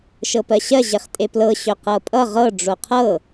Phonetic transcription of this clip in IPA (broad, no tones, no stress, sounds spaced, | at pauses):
ʃ ɤ p ɜ ɕ ɜ ʑ e χ tʼ e p l ɤ ɕ ɵ q ɤ pʼ ʌ ʁ ɤ ɖ͡ʐ o qʰ ɤ